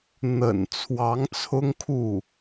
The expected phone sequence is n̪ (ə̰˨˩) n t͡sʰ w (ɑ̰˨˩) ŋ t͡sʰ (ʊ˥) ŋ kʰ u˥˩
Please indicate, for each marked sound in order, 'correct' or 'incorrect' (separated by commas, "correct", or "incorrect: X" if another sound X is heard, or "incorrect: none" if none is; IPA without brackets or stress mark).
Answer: correct, incorrect: ɑ˧˥, correct